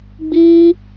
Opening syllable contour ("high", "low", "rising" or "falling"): high